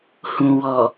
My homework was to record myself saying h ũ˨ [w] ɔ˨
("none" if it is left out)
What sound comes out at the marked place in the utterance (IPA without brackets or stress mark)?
w